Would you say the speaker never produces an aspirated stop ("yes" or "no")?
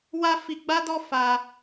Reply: yes